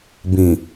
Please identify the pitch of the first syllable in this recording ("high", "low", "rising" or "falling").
low